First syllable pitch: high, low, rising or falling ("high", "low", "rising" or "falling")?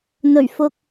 low